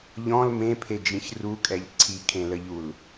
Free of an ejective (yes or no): no